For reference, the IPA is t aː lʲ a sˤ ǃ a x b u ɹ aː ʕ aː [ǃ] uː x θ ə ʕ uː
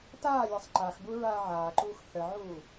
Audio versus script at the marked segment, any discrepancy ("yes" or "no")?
no